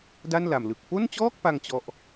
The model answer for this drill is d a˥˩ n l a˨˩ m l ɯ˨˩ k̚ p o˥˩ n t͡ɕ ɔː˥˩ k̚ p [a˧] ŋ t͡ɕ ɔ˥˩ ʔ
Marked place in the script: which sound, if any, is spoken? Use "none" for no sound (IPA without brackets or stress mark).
a˧